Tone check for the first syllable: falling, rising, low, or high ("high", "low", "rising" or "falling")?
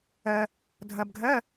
low